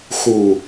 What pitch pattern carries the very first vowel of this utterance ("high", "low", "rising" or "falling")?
low